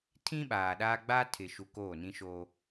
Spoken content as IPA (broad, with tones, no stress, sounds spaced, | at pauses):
tʰ ĩ˦ ɓ aː˨ ɗ aː˦ ɡ͡b aː˦ tʰ ɪ˨ ʃ u˨ k oː˦˨ n ĩ˦ ʃ o˦